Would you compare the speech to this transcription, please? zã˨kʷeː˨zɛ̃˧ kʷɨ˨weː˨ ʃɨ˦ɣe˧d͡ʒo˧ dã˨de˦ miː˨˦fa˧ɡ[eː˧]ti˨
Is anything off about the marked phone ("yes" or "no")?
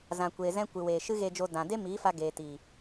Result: yes